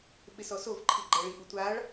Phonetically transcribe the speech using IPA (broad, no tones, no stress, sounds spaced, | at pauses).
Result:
ɓ ɪ s ɔ s o v ǃʰ i ɡ͡ǃ ɛ ɭ i ʔ u tʷ a ɭ